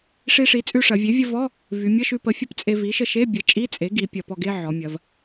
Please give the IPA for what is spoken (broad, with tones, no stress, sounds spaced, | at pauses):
ʂ i˧ ʂ i˩˥ t͡sʼ ʉ˧ ʂ ɐ˩˧ vʲ e˩˥ vʲ ə˧ v ɔ˧˥˧ | v y˩˧ mʲ ə˧˥˧ ʃ ʉ˧ p ə˩˥ fʲ ə˧ p t͡sʼ e˧ v i˩˥ ʃ ə˧ ʃ e˧˥˧ bʲ ə˩˥ t͡ʃʼ i˧˥˧ t͡sʼ e˩˥ ɡ i˩˥ pʲ ɐ˩˧ p ɔ˧ ɡ e˧˥˧ ʕ ɔ˩˧ mʲ ɐ˩˧ v